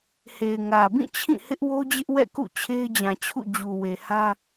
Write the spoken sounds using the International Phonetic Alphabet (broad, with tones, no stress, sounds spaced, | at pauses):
h e˨ ɪ̯ ŋ ä˨ b ĩ˦˨ t͡ɕʰ ĩ˦˨ h ɪ˦ ʔ w o˦ d͡ʑ ɪ˦ ʔ w ɛ̰˦˨ k ṵ˦˨ t͡ɕʰ e˦ ɪ̯ d͡ʑ ã˨ t͡ɕʰ ṵ˦˨ d͡ʑ u˨ w e˨ h ä˦